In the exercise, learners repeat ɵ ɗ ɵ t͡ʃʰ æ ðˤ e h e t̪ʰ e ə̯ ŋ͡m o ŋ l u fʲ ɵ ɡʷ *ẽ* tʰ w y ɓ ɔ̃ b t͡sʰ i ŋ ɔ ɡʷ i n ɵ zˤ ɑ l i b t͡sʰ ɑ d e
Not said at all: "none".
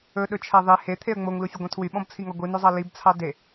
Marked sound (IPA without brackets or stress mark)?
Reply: ẽ